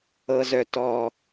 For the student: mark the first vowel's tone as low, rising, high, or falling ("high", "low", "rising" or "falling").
high